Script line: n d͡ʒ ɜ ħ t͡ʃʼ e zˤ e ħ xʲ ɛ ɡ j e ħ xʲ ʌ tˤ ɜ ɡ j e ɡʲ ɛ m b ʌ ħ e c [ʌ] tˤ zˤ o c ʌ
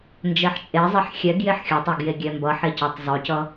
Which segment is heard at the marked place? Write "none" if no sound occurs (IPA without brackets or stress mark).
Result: ʌ